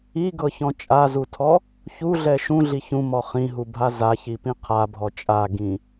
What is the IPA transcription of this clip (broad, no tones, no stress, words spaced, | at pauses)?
iɡɤçɔ̃ t͡ʃʼazutʰɔ | çuɮɛ ʃũɮi çũmɔ χĩɦubʱa zaçipĩ qʰabʱɔ t͡ʃʼaɡĩ